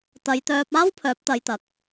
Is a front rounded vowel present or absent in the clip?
present